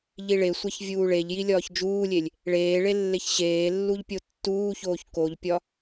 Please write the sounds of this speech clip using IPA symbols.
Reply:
ʎ i ɭ e sʷ æ ç vʲ uː ɭ e ʎ j i lʲ ɒː ç d͡ʒ uː lʲ e lʲ | ɭ eː ɭ e lː e ç ɕ eː lː u ʎ pʲ o tː uː ç oː ç k o ʎ pʲ ɒ

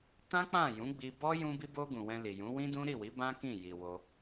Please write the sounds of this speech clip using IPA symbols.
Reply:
t ã˦ k͡p ã˦˨ j ũ˨˦ ɡ͡b i˧ b ɔ˦ j ũ˧ b i˧ b o˧ ɡ ũ˨ w ɛ̃˧ l i˨ j ũ˨˦ w ĩ˦ d ũ˦ ɾ i˦˨ w i˨˦ b ã˦ k ĩ˦˨ j i˨ w o˧

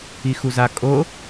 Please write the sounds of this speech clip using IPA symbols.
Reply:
i x u z a kʼ o

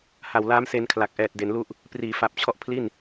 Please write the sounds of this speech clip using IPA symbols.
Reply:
h a˨˩ w l aː˦˥ m s e˧ n kʰ l a˨˩ k̚ ʔ ɛː˨˩ t̚ d e˩˦ n l u˦˥ ʔ | p r iː˩˦ f a˨˩ p̚ t͡ɕʰ ɔ˦˥ ʔ pʰ l i˥˩ n

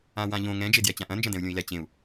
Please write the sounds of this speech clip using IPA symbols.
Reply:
ã w ã ʎ õ ŋ ɛ̃ d͡ʒ e d j ɛ t͡ɕ ã ʔ ɐ̃ n d͡ʒ ɐ̃ d ɛ̃ u̯ lʲ õ i̯ l ɛ t͡ɕ ẽ u̯

